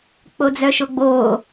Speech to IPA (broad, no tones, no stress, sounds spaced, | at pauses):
k͡p o d͡z œ ʃ o ɡ͡b oː